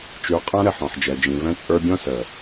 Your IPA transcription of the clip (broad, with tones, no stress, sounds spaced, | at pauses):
t͡ʃ ʉ˨ qʼ ã˦ ɾ ɘ˨ ħ ɔ̃˨ ħ d͡ʒ ɛ˨ d͡ʒ ĩ˨ v ɛ̃˦ t͡sʼ ə˞˦ bʲ ɔ̃˦ s ə˨